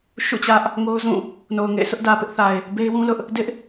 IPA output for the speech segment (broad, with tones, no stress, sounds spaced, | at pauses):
ʃ ṵ˦˨ t͡ɕ ä˦ ʔ | ŋ o˦ ʊ̯ z ũ˦˨ | n o˨ ʊ̯ ŋ ḛ˦˨ ɪ̯ s ʊ˦ ʔ d ä˨ p ɪ˦ ʔ θ a˨ ɪ̯ | b e˦ ɪ̯ w ũ˦ l ʊ˦ ʔ | d ɪ˦ ʔ